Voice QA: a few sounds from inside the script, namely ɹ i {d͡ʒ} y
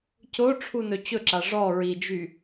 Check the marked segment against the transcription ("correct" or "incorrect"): correct